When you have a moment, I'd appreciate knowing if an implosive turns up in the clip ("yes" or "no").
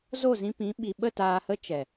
yes